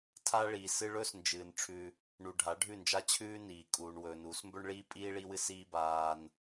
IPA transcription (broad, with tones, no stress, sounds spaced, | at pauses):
tʰ a˦ ɭ i˨ s ɨ˦ ɭ ɵ˦ s n d͡ʒ ɨː˨ n ʈ͡ʂʰ ʉ˦ | ɳ u˨ ɖʱ a˨˦ ɖʱ ʉ˦˨ n d͡ʒ a˦ t͡ɕʰ ʉː˦ n iː˨ kʼ uː˨ ɳ w ɵː˨ n uː˨˦ s m b ɵ˦ ɳ ɭ iː˦ pʼ iː˦ ɭ i˦ w ɨ˦ s iː˦ b aː˦ n